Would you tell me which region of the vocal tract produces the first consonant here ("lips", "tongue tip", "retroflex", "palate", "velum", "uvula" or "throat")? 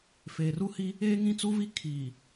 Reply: lips